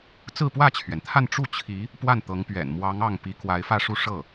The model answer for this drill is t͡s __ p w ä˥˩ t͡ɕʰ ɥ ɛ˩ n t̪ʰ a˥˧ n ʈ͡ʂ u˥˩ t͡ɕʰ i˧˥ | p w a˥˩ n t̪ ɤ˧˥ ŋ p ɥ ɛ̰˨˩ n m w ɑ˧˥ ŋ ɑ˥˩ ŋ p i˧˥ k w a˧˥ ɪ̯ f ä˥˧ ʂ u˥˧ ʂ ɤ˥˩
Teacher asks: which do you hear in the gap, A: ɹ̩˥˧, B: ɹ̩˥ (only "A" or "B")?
A